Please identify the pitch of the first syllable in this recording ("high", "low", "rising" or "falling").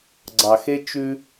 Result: low